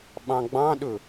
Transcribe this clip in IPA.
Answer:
ɓ ɑ̃ ɡ͡b ɑ̃ ɗ ɵ

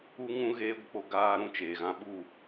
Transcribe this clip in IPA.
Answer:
u˦ ŋ ũ˦ ɣ eː˦ ɡʷ ə˧ k͡p o˧ ɡ aː˧ ɾ ũ˦ t͡ʃ eː˨ ɣ ã˧ ɓ u˦˨

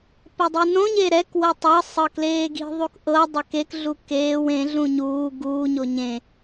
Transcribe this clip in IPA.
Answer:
p ɛ dˤ i n õ ɲ e ɾ ɛ k w ɤ tˤ ɤ sˤ ɤ k l eː ɡ i̤ ðˤ u k ʔ ɤ dˤ ɛ k e k ɮ u k eː w ẽ ɮ ũ ɲ uː ɡ uː ɲ o ɲ ẽ

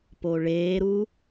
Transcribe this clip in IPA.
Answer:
p o ɭ eː ɾ u

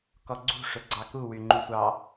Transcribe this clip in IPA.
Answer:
k ɔ ɡ͡ǀ ṳ ʂ ɵ ɡ͡ǀ ɑ k u w y ŋ͡ǃ u sʷ ɑ

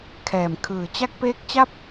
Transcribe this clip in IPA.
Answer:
kʰ ɛː˨˩ m kʰ ɯː˨˩ t͡ɕ a˥˩ k̚ p eː˦˥ k̚ t͡ɕ a˦˥ p̚

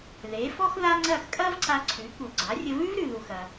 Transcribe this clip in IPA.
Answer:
ð e˩˥ f ɔ˥ x ð a˥ ŋ͡ǀ ɐ˥˩ x kʼ ɐ˥ v ǀ a˧ ǀʰ ʉ˩˥ k u˩ ɡ͡ǀ a˩˥ rʲ ə˧ v ʉ˥ v ɾ ʉ˩ ð u˩ x ɐ˩

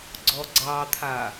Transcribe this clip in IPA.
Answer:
ɡ͡ǀ ɔ ɡ͡ǀ ɑ t̪ʰ a

